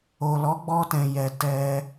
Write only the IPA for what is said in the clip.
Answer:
o˨ l ɔ˨˦ ɡ͡b ɔ˧ t ɛ̃˨ j ɛ˨ t ɛ˧

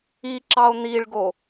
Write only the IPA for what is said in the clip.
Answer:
i ǁ ɑ o̯ n̪ i ɭ ɡ o

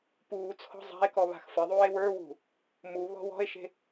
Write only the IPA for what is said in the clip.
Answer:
p uː t͡sʰ ɔ̤ zˤ a̤ e̯ k ɔ β a̤ x f ɘ ðˤ uː e̯ w ə˞ w ṳ | m u β ɔ̤ w ɔ̤ e̯ ʃ e̤

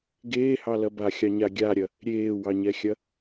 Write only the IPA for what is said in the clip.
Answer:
ɡ eː h ɑ l ɐ b a xʲ ɑ ɲ a ɡʲ a ɾʲ ɐ | ɾʲ eː w ɑ ɲ ɛ xʲ ɐ

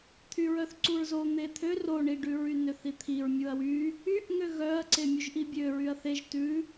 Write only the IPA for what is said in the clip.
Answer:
t̪ʰ y ɹ œ θ ǀ u ɹ z o n̪ e t̪ʰ ø r o ɳ i ɖ ʉ ɹ y n ø θ i t̪ʰ i ɹ mʲ u ɐ̯ w y | y ʔ ŋ ø ɣ œ ɐ̯ ǀ e mʲ u ʒ ʔ i bʲ ø ɹ y ɐ̯ θ e ʒ t ʉ

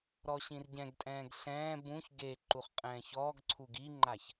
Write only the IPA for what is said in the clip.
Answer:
ɾ ɔ ɕ ĩ r ɟ ɛ̃ ɡ tʼ ɛ̃ː ɡ ɬ ɛ̃ː b ũ ç ɡ e ǃ u χ qʼ ɛ̃ː ç ɔː ɡ ǀʰ u ɡ i ŋ͡ǃ a ç

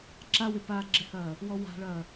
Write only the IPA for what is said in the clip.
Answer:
ǁ a w ɪ p aː ɡ͡ǁ ɪ h ɐː | w ɔ w a̤ ɭ ɐː

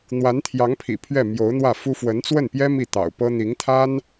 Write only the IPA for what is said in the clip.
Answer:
n̪ w a˧˥ n t̪ʰ j ɑ˧˥ ŋ pʰ ḭ˨˩ pʰ ɥ ɛ˥˩ m j o˧˥ ʊ̯ n̪ w ä˥˩ f u˥ f w ə˧˥ n t͡s w ə˥˩ n p j ɛ˥ m i˥˩ t̪ ɑ̰˨˩ ʊ̯ p ɤ˥ n̪ i˧˥ ŋ t̪ʰ a˥ n

